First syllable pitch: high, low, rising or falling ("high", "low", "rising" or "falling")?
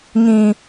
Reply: low